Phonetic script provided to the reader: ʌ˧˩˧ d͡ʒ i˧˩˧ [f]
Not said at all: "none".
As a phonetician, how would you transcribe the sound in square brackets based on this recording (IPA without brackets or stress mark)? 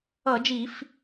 f